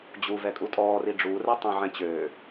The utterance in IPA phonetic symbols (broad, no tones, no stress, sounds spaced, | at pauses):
d͡ʑ u v ɛ kʼ u tʼ ɔː r i ɖ͡ʐ u r ɛ tˤ ɛ̃ ʕ ɛ̃ t͡ɕ øː